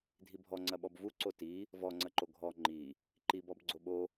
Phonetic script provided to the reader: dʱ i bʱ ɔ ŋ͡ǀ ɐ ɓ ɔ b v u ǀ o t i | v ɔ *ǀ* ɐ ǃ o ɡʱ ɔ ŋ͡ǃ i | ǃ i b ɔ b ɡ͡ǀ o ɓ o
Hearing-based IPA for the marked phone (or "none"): ŋ͡ǀ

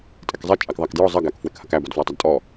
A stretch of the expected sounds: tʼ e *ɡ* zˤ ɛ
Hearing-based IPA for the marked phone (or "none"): k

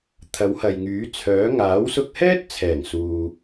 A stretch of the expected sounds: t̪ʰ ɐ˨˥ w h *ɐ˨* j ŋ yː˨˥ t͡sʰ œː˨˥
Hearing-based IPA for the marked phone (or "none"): ɐ˨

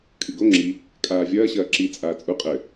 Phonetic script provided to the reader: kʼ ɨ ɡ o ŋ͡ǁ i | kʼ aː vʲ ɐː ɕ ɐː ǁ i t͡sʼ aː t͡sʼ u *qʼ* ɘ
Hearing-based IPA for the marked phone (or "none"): qʼ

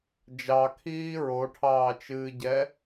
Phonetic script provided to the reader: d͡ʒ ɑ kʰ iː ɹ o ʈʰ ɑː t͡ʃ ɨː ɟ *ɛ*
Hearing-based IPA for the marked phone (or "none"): ɛ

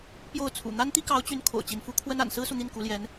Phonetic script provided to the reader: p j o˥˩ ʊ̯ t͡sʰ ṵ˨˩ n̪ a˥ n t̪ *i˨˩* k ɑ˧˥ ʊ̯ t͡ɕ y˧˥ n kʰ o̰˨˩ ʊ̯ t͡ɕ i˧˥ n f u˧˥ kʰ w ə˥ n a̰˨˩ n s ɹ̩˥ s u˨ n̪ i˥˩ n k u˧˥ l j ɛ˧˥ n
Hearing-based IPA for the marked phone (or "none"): i˥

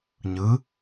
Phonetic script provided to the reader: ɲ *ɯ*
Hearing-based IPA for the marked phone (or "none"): ɯ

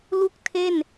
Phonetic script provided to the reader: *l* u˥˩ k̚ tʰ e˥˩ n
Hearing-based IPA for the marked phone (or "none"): l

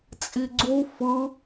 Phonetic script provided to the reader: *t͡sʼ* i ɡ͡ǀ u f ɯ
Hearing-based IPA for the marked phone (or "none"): t͡sʼ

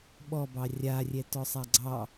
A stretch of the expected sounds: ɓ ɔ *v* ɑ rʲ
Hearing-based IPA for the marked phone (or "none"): b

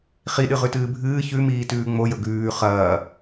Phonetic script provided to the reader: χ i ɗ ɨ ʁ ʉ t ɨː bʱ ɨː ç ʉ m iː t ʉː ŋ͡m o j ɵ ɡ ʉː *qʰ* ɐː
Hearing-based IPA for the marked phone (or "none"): χ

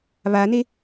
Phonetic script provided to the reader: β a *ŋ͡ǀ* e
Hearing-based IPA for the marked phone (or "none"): n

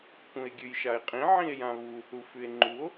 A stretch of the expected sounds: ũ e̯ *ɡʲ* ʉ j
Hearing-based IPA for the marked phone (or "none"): ɡʲ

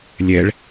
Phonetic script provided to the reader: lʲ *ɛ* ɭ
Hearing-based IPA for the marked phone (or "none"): ɛ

